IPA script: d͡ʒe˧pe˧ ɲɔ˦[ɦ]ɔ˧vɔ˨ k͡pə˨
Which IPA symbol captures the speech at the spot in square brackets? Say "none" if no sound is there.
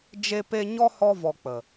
h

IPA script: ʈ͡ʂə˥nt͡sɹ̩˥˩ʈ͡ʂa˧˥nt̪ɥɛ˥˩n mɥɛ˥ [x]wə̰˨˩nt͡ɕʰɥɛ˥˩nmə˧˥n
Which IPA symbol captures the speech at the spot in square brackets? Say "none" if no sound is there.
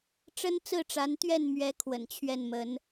kʰ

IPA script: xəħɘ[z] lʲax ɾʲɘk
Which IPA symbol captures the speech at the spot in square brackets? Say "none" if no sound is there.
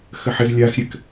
z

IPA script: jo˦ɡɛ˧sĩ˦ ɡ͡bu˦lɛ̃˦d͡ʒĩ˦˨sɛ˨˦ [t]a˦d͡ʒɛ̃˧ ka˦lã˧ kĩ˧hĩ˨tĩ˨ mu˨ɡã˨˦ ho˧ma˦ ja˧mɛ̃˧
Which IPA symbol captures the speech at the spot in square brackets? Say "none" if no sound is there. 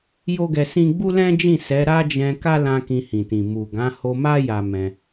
ɾ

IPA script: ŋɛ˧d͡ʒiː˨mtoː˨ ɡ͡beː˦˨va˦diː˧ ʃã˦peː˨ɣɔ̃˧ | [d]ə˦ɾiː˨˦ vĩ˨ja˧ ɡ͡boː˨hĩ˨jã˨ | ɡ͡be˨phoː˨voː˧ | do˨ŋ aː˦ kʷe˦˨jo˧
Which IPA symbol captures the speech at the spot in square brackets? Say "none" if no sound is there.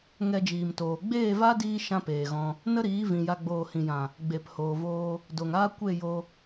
n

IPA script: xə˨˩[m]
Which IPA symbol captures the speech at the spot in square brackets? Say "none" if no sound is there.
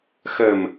m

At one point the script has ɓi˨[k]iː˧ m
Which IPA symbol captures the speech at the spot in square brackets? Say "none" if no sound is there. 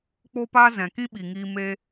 ŋ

